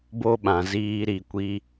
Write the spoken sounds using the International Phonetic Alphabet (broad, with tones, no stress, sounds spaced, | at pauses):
b o˦ ɓ ã˨ z iː˧ ɾ i˨ kʷ i˧